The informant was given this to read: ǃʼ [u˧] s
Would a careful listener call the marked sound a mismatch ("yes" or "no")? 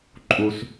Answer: no